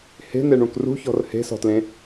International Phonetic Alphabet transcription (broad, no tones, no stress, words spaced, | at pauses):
he̤n̪eɳũk rṳçɔ̤r he̤sɔ̤tlẽ